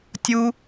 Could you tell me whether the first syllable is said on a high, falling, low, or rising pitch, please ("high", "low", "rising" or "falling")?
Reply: high